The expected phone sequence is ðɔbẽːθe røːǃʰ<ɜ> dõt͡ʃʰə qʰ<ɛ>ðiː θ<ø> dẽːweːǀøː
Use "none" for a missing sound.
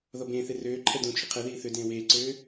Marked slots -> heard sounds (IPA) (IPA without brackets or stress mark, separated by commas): ɛ, ɛ, ø